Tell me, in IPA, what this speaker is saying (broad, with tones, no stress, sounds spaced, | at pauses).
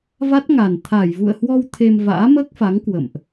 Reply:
v a˦˥ t̚ ŋ a˨˩ n t̪ʰ aː˧˩ j v ṵ˧˨ ə̯ h w ɔ˧ w t̪ʰ e˧ m v a̰ː˧˥ m əː˦˥ k̚ f a˨˦ ŋ k w ə̰˧˨ m ʔ